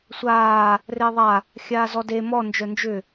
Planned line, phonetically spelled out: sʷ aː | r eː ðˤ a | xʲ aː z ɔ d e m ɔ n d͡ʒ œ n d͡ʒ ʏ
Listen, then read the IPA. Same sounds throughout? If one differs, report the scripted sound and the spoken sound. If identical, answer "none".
none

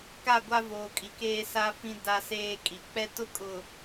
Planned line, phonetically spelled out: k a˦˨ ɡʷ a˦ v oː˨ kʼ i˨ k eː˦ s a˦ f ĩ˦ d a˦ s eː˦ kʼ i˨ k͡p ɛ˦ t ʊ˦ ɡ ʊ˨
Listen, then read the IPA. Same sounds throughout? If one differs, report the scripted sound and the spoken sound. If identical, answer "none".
ɡ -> kʼ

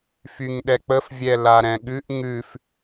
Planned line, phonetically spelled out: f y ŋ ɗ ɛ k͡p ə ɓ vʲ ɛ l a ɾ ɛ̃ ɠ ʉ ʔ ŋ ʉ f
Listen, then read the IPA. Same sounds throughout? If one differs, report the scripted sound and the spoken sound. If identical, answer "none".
ɓ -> f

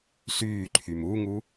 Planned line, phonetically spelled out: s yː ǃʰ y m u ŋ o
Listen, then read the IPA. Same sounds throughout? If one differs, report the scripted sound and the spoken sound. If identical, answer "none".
o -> u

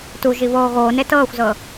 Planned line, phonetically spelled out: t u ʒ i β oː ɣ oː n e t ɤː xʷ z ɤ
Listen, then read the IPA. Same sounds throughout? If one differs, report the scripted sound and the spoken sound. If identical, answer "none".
none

